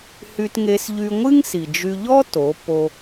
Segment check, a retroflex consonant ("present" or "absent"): absent